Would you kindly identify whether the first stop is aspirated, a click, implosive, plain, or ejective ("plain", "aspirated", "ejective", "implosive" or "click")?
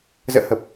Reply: plain